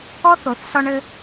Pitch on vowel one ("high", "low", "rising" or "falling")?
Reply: high